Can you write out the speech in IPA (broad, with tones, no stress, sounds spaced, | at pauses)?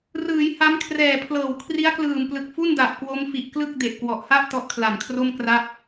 r ɯː˩˦ j h a˦˥ m kʰ r ɛː˨˩ pʰ l ɤː˨˩ w kʰ r i˦˥ a̯ k l ɯː˨˩ m p l ɯ˨˩ k̚ f u˥˩ n d a˨˩ ʔ k w o˦˥ m f i˨˩ ʔ k l ɯ˥˩ k̚ d e˨˩ ʔ k w ɔ˨˩ ʔ h a˥˩ ʔ t ɔ˦˥ ʔ kʰ l a˨˩ n kʰ r o˥˩ m k r a˥˩ p̚